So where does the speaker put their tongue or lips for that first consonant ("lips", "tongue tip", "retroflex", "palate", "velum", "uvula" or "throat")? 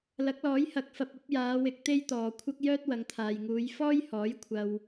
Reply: tongue tip